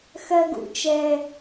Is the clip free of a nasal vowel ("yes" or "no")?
yes